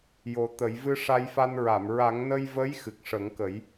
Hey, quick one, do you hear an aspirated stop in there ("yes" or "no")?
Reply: no